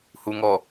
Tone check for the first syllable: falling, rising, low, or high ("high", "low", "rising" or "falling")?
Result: low